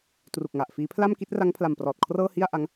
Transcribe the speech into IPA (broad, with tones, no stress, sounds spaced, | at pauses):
t r u˨˩ k̚ ŋ a˨˩ ʔ f iː˦˥ pʰ l a˥˩ m k i˦˥ t̚ r a˦˥ ŋ pʰ l a˨˩ m p r ɔː˨˩ t̚ kʰ r ɤː˥˩ h i˥˩ a̯ ʔ a˦˥ ŋ